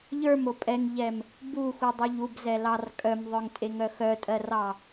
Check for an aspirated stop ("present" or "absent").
absent